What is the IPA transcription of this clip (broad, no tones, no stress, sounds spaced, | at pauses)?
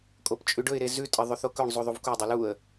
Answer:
kʼ o p t͡ʃʼ ʉ ɖ ɵ ɪ̯ ɾ e z ʉ tʼ ɐ ðˤ ʉ θ o k ɵ ɳ zˤ u ðˤ u v k u dˤ ɵ l u ə̯